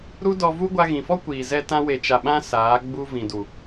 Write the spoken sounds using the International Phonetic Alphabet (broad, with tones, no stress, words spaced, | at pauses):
ɾu˦dɔ˧vu˦ ɡʷa˧ɣĩ˨fɔ˦kʷiː˨ zɛ˧tã˧ we˨t͡ʃa˨ɓã˧ saː˨˦ɡ͡bu˦ vĩ˨du˨